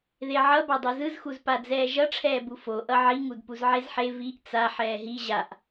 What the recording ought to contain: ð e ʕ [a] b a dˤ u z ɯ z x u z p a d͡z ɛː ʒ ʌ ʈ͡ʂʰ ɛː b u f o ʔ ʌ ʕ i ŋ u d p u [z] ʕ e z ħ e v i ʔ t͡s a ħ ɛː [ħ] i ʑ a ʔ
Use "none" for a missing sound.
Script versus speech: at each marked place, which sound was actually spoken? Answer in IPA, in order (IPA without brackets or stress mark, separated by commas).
ʌ, z, ɦ